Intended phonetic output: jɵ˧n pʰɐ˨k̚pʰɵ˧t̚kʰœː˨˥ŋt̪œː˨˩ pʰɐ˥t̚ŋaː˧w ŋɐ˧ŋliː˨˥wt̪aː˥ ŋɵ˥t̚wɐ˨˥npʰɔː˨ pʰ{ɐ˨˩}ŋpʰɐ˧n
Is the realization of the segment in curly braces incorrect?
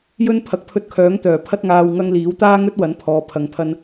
yes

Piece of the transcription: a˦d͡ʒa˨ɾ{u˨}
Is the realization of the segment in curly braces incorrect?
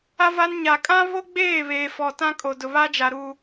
no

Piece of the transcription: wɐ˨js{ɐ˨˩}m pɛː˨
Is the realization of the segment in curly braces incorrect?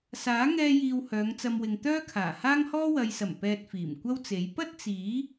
no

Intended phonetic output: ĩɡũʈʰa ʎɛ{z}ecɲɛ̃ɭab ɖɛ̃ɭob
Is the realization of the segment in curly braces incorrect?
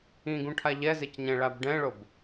no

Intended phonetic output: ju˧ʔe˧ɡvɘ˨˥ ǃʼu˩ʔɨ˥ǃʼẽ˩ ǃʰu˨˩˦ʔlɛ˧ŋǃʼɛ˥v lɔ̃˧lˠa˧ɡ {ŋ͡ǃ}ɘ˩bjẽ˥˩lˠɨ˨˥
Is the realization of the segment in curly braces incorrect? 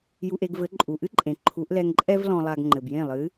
no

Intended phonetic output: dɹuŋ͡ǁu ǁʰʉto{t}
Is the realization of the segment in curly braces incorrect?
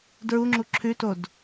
yes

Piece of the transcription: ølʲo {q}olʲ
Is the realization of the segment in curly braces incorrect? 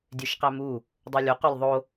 no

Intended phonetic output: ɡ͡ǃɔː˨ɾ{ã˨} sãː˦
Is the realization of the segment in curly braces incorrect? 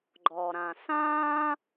no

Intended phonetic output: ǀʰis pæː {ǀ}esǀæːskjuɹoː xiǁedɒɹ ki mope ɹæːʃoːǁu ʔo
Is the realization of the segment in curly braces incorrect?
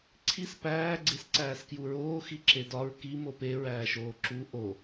yes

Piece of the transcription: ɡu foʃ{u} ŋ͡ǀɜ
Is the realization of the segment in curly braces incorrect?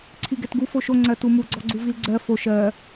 yes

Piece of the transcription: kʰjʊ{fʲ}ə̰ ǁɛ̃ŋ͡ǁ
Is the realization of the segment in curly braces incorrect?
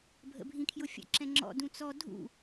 no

